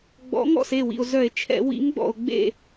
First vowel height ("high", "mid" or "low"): mid